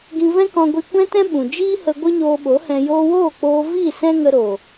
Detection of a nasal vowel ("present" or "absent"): present